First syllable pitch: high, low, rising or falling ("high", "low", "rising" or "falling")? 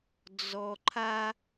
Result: low